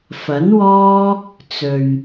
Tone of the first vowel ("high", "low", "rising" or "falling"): rising